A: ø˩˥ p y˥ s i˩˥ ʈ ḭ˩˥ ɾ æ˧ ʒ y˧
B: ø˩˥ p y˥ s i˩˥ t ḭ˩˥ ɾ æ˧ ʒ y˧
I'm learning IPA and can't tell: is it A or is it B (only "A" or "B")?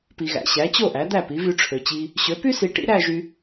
A